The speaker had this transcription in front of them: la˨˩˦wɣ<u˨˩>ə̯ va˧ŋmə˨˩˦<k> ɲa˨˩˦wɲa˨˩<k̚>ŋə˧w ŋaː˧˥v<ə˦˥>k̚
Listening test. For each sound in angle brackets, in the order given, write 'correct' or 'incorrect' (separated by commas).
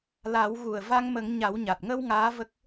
correct, incorrect, incorrect, correct